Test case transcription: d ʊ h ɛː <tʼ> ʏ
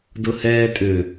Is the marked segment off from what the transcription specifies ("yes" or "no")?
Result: no